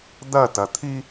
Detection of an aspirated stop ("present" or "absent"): present